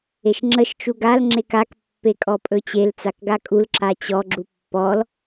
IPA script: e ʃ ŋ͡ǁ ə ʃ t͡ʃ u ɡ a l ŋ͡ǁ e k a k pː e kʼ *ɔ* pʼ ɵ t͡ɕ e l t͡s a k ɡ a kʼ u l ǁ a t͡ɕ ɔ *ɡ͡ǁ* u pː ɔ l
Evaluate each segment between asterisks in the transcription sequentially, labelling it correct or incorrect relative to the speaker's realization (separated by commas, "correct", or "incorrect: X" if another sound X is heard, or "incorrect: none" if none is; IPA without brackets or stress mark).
correct, correct